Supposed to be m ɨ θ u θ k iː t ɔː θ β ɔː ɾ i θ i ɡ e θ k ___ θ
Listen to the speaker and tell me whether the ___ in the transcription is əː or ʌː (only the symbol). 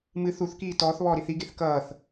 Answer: ʌː